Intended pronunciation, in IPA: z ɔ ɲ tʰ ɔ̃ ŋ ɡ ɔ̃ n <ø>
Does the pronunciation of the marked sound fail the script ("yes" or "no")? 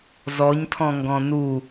yes